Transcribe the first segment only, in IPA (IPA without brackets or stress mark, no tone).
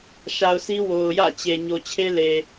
ʃ